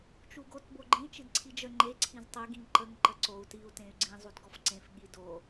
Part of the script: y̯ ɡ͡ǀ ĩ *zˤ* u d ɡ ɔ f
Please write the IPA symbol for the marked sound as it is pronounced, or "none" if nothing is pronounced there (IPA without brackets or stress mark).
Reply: zˤ